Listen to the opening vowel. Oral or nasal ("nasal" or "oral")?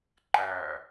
oral